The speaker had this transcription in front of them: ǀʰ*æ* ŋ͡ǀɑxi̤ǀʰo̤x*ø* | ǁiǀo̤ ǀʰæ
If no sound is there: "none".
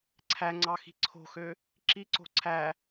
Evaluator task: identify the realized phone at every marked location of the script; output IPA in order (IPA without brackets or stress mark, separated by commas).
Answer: æ, ø